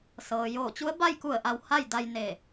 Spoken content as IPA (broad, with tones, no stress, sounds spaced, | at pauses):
s ɤː˩ j oː˧˩ t͡ɕ u˧˥ ə̯ b a˥˨ j k u˧˩ ə̯ ʔ a˩˧ w h a˥˨ j d a˧ j n e˧˩